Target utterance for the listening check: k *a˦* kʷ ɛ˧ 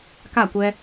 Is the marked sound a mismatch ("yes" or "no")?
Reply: yes